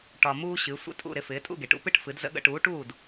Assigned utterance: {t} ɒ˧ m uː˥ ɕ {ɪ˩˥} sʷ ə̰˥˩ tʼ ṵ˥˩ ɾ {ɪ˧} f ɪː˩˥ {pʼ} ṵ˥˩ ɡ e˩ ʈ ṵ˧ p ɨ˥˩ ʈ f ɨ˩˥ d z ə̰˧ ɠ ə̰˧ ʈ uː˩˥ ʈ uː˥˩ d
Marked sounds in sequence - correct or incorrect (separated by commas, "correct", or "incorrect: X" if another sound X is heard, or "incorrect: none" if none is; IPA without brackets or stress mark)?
incorrect: ʈ, incorrect: ɨ˩˥, correct, incorrect: tʼ